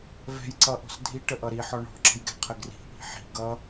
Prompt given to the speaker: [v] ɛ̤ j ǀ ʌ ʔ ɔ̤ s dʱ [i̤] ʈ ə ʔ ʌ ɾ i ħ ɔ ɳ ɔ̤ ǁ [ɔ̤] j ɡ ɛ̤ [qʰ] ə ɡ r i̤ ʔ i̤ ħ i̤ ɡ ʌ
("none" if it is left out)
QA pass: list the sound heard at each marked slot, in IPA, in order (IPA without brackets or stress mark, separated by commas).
v, i, ə̤, qʰ